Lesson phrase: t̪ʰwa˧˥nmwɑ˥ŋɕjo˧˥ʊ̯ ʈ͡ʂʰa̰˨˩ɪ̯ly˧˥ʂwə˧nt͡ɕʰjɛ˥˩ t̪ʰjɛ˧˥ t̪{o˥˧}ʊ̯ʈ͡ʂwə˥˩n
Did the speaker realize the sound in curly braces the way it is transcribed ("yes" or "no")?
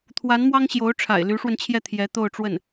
yes